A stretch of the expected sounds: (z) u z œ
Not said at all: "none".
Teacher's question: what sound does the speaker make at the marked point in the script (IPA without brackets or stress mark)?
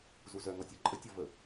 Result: z